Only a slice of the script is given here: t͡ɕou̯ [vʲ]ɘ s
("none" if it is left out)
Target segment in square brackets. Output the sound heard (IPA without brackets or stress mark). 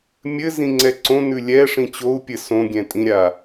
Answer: pʲ